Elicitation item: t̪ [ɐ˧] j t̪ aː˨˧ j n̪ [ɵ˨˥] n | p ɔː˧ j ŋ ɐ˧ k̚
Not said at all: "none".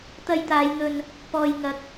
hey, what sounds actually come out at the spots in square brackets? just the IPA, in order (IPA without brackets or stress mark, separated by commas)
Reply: ɐ˧, ɵ˧